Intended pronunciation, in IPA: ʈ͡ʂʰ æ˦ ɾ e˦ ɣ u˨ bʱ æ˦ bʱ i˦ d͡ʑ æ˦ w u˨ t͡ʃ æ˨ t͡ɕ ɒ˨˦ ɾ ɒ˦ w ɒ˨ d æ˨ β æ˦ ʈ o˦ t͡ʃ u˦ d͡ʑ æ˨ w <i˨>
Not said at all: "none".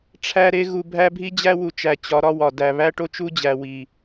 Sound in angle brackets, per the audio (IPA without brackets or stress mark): i˨